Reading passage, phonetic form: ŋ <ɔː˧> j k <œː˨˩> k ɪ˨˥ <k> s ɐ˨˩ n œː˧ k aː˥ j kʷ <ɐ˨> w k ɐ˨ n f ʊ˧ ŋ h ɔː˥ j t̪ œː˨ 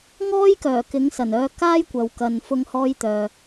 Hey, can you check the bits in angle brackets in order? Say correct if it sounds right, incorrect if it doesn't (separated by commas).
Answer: incorrect, correct, incorrect, correct